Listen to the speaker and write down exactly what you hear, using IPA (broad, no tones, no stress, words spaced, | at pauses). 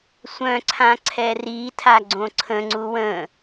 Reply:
sʷœ̃ǀʰãǀʰɛ ritʰa ɡ͡ǀõǀʰə̃ ŋ͡ǀuwə̃